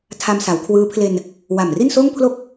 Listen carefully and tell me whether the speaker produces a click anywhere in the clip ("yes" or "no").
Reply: no